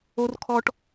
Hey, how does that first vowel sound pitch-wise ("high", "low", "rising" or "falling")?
low